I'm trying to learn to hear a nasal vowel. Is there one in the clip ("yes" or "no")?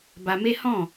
yes